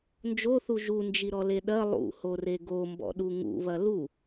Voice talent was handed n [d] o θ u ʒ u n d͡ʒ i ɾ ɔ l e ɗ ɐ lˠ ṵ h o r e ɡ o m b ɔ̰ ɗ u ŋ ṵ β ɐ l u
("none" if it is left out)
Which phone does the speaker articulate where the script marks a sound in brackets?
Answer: d͡ʒ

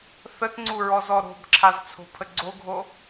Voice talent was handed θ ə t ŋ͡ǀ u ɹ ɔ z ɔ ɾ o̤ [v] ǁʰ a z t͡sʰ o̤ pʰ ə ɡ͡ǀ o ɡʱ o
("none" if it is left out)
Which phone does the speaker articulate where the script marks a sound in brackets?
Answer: b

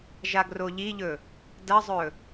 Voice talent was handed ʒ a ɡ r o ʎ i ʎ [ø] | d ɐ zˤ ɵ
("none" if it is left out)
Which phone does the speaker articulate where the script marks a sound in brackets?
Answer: ɵ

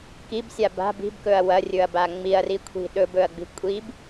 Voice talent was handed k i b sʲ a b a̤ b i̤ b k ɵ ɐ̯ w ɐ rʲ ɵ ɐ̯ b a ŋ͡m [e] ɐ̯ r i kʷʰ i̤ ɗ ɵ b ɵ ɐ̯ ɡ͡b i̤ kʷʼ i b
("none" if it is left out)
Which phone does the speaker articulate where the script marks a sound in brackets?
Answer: i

